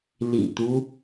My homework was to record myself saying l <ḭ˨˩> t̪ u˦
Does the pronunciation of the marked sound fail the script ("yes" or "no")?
no